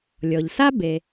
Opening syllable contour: low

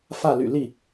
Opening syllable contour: falling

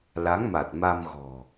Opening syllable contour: rising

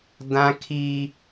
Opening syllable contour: high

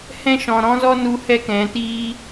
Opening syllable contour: high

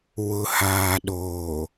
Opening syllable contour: low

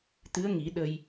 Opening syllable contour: rising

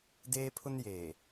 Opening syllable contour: high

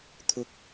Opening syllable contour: low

